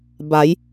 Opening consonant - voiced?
yes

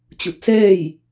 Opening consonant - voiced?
no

